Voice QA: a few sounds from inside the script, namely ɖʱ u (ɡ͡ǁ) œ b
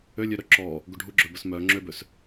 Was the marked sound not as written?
no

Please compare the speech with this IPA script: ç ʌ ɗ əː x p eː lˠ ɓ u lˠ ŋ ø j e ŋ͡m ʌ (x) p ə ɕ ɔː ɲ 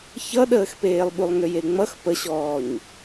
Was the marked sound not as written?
no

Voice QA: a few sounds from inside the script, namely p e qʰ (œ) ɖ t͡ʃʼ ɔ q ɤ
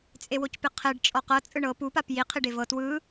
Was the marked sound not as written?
yes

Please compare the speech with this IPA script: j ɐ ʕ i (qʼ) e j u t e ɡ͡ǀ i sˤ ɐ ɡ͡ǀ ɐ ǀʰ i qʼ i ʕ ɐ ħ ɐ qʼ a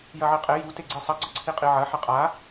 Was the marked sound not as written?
no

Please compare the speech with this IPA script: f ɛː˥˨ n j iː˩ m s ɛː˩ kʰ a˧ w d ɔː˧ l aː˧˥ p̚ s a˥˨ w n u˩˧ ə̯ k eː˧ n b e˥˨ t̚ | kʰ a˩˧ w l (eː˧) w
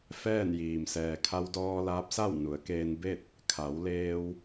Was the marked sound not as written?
no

